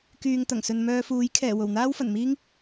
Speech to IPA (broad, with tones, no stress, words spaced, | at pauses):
kyː˨ŋt̪ɐ˨˩ŋsɵ˨n mœː˧fuː˨˥jkʰɛː˨˩ wo˨˩wn̪aː˥wfɐ˨˩n miː˥ŋ